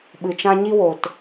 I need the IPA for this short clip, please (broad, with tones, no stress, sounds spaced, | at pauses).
ɓ ɨ˨ t͡ʃ ã˦ ɲ i˦ w o˨ t